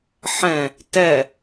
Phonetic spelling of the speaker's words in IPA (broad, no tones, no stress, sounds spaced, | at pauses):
ħ ɛ̃ | t ɛ